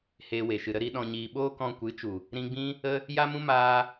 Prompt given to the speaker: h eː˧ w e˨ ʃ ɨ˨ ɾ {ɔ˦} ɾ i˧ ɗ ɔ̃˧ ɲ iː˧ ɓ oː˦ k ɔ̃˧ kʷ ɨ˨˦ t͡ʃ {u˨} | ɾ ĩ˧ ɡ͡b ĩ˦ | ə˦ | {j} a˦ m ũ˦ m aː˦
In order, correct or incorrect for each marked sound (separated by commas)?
incorrect, correct, correct